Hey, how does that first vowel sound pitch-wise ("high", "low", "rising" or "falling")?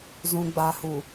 low